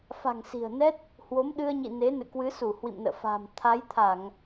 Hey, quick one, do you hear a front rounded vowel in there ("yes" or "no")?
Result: no